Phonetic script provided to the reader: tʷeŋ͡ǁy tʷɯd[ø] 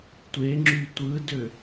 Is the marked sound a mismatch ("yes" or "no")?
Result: no